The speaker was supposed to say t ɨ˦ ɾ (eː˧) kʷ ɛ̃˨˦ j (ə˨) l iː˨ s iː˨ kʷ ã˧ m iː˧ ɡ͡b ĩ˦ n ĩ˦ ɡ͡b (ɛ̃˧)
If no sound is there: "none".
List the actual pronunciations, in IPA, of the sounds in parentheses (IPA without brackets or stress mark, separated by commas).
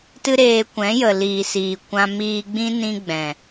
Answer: eː˧, ə˨, ɛ̃˨